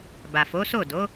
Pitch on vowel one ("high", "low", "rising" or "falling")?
low